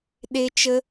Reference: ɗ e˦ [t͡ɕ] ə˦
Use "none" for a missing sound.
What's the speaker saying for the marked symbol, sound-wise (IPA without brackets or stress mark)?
t͡ʃ